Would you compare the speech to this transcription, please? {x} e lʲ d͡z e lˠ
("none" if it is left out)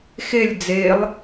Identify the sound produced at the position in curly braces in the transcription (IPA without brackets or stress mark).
x